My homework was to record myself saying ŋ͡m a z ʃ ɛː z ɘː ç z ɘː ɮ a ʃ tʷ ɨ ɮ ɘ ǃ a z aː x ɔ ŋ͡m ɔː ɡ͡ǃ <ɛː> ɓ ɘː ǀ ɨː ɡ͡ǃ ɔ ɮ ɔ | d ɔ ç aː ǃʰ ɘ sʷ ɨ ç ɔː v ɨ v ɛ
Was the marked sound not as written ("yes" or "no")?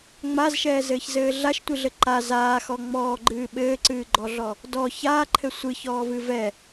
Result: yes